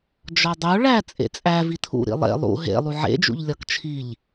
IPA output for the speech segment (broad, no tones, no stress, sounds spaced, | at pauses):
d͡ʒ ɒ dˤ o ɭ æ t͡sʼ ḛ t͡sʼ æ v i tʰ ṵ ɾ ḭ lˠ ḛ lˠ ṵ ɦ ḛ lˠ u ʕ ḛ d͡ʒ ṵ ʎ lʲ ɒ k t͡ʃʰ i ʎ